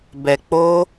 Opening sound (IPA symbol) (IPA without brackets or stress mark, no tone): b